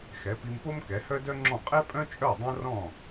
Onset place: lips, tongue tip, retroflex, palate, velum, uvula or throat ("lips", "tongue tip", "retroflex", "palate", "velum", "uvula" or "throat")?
velum